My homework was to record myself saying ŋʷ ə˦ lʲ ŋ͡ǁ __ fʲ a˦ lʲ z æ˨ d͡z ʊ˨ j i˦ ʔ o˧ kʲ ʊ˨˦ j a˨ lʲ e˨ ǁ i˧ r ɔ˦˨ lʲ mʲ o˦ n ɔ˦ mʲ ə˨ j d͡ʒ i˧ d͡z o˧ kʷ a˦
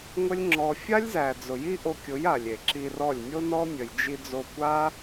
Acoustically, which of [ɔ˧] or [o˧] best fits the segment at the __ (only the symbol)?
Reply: ɔ˧